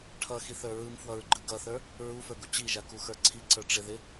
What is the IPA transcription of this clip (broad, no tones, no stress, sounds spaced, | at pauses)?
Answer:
ʈʰ ʌ x i θ ə˞ ɹ ɯ m f w ʌ ɹ ɡ͡ǃ ɯ ɡ ʌ θ ə˞ | ɹ u f ə˞ ɡ u t͡ɕ i ʒ a k u x ə˞ ǀʰ i ǀ ə˞ ʈ͡ʂ ɪ ð ɪ